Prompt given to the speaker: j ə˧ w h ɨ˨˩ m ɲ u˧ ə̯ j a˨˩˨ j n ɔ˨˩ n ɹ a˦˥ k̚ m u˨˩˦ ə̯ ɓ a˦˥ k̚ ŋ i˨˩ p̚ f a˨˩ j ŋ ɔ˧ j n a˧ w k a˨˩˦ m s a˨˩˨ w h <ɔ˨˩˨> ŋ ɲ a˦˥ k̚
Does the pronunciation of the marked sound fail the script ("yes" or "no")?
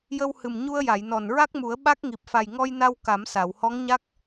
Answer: yes